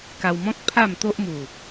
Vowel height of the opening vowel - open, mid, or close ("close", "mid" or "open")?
open